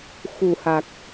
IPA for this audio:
x u˨˩ h a˨˩ k̚

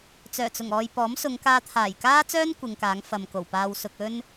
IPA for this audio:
t͡s œː˨˩ t͡s ʊ˨˩ ŋ ɔː˨ j p ɔː˨˥ m s ʊ˨˧ ŋ k aː˧ t̪ʰ aː˨˩ j k aː˥ t͡s œː˥ n kʷ ɪ˨˧ ŋ k aː˨˥ ŋ f ɐ˨ m k o˨˩ w p aː˨ w s ʊ˨ k̚ ɵ˥ n

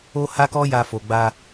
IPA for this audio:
o˦ h a˦ k ɔ˦ j a˧ f o˨ ɡ͡b a˧

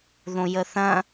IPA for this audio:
ð õ j ə θ ɐ̃

